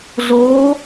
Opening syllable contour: rising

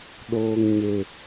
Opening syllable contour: low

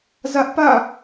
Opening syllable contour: high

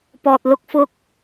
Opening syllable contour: low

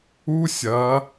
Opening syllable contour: high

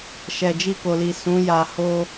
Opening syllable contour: low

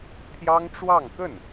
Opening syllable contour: high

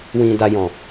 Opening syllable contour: low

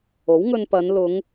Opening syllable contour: rising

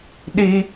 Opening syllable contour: high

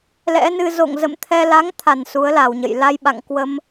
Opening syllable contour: rising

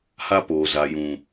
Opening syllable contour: high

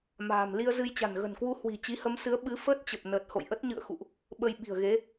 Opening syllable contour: low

